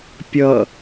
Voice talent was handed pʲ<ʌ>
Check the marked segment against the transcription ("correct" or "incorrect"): correct